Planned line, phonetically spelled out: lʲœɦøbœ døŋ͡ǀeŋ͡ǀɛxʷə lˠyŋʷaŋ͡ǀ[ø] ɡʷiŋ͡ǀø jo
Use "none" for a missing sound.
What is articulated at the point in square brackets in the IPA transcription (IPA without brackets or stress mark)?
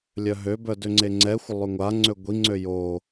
ø